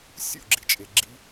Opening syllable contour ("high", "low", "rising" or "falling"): falling